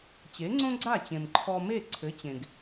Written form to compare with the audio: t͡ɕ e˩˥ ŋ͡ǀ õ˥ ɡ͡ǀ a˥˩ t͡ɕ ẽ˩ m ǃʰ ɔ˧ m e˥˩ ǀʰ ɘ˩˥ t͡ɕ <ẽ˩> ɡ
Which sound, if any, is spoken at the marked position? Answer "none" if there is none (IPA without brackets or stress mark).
ẽ˩